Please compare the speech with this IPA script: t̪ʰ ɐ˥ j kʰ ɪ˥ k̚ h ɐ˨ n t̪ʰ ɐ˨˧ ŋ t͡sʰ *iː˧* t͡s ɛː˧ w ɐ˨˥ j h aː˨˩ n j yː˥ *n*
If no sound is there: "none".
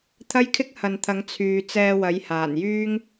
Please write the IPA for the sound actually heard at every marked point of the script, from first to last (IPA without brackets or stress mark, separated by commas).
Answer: yː˧, ŋ